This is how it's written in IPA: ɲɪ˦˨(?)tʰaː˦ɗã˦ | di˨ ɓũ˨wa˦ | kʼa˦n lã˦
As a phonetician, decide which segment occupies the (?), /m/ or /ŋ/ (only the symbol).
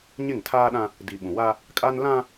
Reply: ŋ